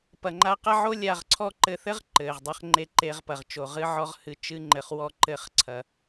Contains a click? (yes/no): yes